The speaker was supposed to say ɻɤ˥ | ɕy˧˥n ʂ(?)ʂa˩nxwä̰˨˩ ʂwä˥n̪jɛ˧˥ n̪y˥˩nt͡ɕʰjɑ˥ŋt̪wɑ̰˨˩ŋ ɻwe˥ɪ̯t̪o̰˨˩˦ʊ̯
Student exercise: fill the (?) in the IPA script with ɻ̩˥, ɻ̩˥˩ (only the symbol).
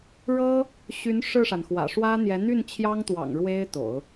ɻ̩˥˩